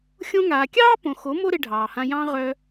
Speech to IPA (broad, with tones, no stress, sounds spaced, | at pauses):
xʲ õ˧ ŋ aː˨ kʲ ɑː˦ p õ˨ x o˨˦ m o˦ ɾ e˧ ɖʱ ɑː˨ h ã˧ j ɑ̃˧ ʁ œ˧